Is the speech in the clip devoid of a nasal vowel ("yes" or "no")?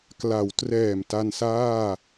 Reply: yes